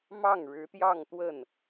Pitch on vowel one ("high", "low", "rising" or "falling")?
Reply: falling